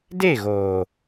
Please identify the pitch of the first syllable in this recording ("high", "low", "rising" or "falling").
falling